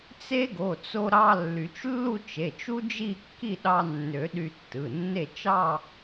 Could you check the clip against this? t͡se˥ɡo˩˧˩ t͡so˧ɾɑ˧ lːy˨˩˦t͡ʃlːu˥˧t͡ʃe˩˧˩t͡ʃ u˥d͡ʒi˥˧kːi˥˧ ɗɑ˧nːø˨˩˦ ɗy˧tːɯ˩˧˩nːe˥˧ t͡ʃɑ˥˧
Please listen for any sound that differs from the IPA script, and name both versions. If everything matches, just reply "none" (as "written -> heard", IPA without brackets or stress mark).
none